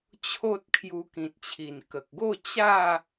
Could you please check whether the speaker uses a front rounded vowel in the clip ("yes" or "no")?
no